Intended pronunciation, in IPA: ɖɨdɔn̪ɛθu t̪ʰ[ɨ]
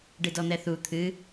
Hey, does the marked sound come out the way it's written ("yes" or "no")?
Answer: yes